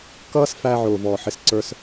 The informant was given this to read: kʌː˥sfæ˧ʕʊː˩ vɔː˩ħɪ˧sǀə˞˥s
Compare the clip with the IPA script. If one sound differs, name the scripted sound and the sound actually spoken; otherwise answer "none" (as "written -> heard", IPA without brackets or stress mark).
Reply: none